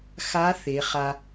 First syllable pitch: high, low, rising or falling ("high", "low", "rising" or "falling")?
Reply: rising